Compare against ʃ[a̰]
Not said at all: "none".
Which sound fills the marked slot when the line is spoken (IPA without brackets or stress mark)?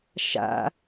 a̰